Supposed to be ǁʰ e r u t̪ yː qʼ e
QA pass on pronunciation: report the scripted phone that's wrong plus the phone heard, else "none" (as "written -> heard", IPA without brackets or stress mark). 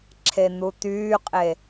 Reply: r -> n̪